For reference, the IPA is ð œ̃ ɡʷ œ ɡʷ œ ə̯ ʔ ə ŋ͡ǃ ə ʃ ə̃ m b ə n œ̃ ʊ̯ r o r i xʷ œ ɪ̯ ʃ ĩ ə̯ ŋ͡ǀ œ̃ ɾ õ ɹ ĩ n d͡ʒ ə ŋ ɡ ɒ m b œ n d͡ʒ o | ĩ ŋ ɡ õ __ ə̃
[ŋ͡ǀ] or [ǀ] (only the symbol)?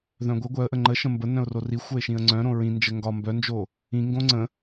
ŋ͡ǀ